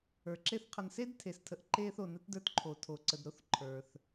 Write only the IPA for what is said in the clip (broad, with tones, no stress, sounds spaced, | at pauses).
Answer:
ə˞˩ ǁ e˦ θ qʰ ə˨ n s e˥ d tʰ e˩ s tʰ ə˨ ʔ ǃ e˦ θ o˩ n ə˥ t d ə˞˦ t ǃʰ o˩ tʰ o˩ ǀ ə˩ d ɾ o˦ θ ǃʰ ə˞˩ θ